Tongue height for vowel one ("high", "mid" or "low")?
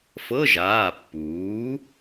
mid